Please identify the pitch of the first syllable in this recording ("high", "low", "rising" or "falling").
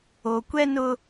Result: low